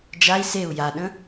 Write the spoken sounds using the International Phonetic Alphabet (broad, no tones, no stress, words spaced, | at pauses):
d͡ʒai̯ seu̯ jaɗə̃